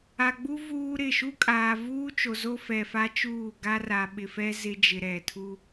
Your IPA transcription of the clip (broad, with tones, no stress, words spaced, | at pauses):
a˨ɡ͡bu˦ vuː˦ɾɪ˦˨ ʃu˦kʼaː˨vuː˦t͡ʃo˨ zo˦fɛ˨fa˦t͡ʃuː˦˨ ɡa˦ra˨ɓɪ˨ fɛ˦ zɪ˦ d͡ʒɪ˨ɾɛ˨tʰu˦